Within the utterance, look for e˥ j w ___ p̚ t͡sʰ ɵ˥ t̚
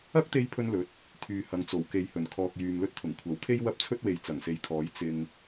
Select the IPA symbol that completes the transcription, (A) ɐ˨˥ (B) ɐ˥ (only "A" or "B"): B